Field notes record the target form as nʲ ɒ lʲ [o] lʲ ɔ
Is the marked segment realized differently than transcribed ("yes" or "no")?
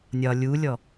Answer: yes